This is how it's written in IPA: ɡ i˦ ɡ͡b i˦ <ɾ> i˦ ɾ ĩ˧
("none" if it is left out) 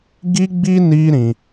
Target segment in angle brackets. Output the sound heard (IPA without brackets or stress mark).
n